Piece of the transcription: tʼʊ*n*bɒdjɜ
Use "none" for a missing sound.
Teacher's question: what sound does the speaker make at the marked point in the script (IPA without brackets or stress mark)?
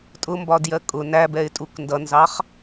m